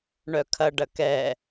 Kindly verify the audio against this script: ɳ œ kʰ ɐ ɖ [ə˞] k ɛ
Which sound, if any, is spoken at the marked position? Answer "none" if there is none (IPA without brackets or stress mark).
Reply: ɐ